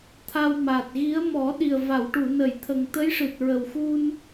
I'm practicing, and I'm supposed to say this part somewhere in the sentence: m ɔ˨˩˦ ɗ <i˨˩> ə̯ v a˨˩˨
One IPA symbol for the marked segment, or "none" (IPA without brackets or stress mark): i˨˩